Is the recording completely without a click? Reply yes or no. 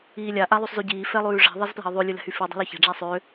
yes